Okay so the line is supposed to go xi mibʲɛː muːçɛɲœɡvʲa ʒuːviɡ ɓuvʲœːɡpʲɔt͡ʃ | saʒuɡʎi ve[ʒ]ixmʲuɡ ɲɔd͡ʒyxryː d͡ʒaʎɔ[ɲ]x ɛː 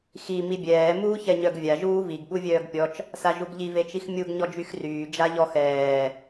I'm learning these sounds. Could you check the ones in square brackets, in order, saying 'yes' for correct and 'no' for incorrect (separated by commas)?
no, no